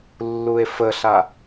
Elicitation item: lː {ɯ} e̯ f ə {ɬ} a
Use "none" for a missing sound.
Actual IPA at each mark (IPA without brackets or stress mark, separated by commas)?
u, ɬ